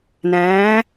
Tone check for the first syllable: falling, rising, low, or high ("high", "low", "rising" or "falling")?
rising